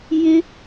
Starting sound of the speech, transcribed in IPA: j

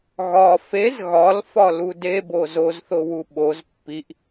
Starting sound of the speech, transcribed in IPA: ɣ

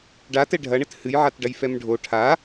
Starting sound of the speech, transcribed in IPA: ɖ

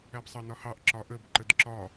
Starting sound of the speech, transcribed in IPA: æ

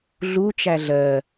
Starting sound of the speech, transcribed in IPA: ɮ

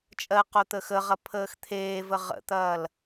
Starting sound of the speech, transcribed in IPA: t͡ʃʼ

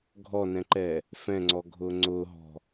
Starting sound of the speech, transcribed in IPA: ɡʱ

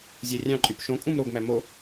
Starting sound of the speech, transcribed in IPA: zʲ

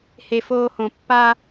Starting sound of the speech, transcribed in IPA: h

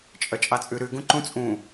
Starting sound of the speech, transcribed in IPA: t͡ʃʼ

